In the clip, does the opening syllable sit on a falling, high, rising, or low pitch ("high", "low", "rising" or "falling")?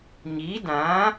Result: rising